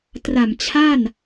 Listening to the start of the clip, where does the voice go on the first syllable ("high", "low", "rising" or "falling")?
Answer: low